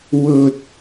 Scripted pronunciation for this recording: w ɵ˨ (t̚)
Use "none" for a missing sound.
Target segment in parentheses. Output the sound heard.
t̚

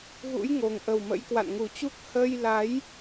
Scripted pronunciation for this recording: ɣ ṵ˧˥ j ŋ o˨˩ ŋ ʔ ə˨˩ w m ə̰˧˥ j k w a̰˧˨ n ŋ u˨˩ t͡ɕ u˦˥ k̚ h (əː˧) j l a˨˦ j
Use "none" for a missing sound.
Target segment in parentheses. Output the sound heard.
əː˧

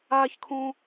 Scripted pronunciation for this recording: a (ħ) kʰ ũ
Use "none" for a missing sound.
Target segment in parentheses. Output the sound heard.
ç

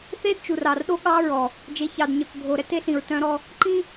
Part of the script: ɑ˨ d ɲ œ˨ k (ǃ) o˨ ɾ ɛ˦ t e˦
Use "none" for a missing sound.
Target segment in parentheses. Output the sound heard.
ɡʱ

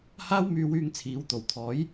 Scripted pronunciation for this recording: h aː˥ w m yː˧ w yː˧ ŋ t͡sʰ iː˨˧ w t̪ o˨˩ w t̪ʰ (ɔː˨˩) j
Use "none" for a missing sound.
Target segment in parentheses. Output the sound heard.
ɔː˨˥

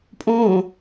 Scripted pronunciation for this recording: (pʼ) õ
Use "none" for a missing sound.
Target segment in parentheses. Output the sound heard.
pʼ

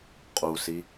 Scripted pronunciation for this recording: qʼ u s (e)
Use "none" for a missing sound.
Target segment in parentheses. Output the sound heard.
i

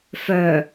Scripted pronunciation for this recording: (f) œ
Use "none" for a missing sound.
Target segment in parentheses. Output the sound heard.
f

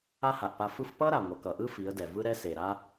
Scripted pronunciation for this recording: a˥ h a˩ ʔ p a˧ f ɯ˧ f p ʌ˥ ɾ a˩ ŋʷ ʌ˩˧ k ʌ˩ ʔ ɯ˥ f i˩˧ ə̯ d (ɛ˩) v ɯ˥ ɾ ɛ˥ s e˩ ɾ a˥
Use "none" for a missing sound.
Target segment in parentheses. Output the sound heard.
ɛ˩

